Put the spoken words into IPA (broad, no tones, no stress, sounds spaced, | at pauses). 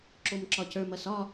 ǁ o m ǁ ɒ c ə˞ m ɐ s ɒ